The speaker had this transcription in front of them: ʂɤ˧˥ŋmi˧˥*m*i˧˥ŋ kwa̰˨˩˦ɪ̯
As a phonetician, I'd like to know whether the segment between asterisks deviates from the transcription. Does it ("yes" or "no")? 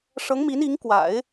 yes